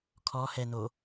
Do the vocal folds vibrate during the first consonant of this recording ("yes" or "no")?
no